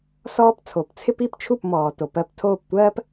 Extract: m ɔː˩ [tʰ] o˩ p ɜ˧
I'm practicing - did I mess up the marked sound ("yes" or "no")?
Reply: yes